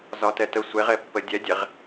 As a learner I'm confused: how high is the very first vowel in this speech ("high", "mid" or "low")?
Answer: low